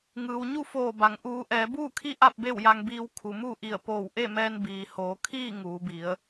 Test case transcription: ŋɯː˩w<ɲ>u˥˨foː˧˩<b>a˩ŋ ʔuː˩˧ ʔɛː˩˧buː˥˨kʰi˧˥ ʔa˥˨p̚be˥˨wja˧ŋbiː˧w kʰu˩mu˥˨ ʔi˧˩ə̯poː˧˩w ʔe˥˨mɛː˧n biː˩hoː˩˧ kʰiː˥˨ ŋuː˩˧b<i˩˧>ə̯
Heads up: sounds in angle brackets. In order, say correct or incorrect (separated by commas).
correct, correct, correct